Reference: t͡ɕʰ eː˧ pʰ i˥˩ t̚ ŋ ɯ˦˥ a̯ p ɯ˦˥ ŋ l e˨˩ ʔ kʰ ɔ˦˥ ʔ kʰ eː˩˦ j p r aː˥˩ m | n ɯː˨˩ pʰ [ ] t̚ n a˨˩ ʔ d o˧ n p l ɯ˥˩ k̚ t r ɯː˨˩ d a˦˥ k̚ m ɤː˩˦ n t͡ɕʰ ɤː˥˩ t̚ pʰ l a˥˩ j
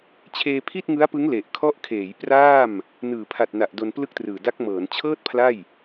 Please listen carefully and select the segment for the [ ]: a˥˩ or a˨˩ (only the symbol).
a˨˩